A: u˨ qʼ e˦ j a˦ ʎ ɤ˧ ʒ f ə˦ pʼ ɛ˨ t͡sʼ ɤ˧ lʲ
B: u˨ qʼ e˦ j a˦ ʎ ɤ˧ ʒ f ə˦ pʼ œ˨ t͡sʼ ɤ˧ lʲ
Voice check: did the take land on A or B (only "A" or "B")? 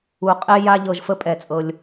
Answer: A